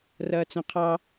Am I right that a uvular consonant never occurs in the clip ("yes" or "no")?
no